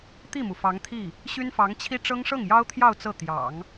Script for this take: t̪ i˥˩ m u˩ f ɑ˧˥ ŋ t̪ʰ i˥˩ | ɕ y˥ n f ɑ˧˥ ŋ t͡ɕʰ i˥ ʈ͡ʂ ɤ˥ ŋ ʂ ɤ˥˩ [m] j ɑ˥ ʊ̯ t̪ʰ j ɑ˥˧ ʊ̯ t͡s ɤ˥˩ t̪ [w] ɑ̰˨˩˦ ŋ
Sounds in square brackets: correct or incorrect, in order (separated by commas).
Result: incorrect, incorrect